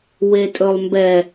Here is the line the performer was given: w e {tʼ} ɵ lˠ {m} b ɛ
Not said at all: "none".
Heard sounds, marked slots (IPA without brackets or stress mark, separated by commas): tʼ, m